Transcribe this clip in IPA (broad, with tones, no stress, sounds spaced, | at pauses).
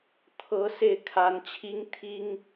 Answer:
t̪ʰ ɤ˧˥ s e˥˩ ɪ̯ kʰ a˧˥ n t͡ɕʰ i˥ ŋ t̪ʰ i˥ ŋ